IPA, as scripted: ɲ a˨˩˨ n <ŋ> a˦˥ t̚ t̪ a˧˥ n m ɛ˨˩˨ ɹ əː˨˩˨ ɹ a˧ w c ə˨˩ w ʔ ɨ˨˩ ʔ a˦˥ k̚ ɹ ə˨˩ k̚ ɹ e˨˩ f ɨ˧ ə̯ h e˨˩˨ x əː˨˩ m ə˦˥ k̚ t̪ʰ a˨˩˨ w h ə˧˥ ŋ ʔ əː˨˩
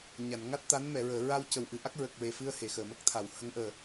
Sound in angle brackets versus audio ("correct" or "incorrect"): correct